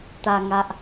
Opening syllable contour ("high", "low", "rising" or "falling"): low